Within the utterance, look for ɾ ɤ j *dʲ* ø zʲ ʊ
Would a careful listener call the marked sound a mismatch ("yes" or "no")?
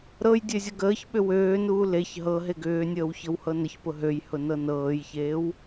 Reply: no